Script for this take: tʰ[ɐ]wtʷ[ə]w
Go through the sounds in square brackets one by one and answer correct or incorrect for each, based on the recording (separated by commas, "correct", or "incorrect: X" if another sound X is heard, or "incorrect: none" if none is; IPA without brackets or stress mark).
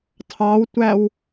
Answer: incorrect: ɑ, incorrect: æ